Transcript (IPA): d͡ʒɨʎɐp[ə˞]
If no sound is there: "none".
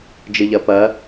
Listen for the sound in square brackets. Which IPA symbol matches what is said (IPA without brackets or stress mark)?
ɐ